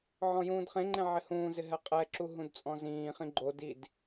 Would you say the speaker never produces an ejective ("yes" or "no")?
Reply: no